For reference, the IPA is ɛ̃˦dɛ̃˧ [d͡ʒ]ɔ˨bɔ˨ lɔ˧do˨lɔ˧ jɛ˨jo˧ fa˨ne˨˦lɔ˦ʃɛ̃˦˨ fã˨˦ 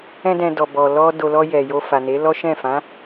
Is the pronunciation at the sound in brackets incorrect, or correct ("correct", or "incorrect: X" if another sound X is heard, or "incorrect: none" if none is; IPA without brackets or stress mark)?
incorrect: d